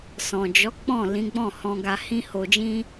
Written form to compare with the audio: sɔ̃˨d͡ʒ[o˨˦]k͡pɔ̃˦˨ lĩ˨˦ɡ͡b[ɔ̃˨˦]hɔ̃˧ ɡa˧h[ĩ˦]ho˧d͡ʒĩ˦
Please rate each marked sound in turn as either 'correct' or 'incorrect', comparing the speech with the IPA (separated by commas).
incorrect, incorrect, correct